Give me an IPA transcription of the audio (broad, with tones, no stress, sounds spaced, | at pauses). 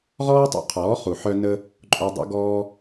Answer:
ʁ ɔː˦ tˤ o̰˧ qʰ ɔː˨˦ χ u˨ ħ œ˦ n ə˦ | ǃʼ u˧ dˤ o̰˦ ɡ ɔː˦